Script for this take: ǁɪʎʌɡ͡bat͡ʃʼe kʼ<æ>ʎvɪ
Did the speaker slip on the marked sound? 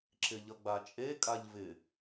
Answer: yes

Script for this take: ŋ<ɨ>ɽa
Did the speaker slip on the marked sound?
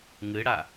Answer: no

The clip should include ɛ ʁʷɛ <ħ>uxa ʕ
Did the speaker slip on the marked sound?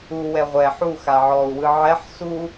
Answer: no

